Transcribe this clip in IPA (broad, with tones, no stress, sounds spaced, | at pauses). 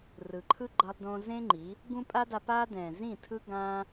r ɯ˨ ǃʰ ɯ˦ ɡ͡ǃ ʌ˧ lˠ d õ˧ z ẽ˦ ŋ͡ǃ i˨˦ | ɡ ũ˦ pʼ a˦ d a˧ p aː˦ d ɛ̃˨ z ĩ˦˨ tʰ ɯ˦ ɡ ãː˦